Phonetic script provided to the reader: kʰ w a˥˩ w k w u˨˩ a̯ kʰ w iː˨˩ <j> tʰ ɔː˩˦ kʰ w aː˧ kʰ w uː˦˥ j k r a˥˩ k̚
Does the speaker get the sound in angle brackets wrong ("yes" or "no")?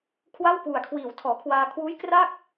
yes